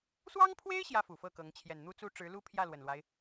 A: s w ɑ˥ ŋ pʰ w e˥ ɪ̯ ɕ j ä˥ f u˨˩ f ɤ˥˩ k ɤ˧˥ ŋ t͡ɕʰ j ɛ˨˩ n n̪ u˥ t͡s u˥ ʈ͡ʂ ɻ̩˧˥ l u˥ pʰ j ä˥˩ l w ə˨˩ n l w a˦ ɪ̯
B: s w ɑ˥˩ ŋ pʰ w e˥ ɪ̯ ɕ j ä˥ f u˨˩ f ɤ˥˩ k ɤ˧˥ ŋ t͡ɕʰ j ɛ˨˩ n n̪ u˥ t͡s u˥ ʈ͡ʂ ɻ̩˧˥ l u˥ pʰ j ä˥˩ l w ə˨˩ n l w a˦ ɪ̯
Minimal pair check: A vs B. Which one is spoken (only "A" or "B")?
A